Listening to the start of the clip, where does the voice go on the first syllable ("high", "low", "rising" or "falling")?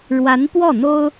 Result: rising